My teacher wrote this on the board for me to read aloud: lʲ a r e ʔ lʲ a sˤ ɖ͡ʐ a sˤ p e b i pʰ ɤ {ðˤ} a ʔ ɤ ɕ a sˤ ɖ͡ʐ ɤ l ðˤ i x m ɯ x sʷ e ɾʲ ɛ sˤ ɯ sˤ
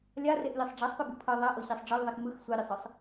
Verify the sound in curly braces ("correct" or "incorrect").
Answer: correct